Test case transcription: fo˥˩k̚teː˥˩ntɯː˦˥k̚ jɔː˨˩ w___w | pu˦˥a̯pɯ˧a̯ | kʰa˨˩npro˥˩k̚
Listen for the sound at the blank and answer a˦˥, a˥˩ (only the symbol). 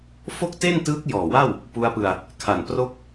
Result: a˥˩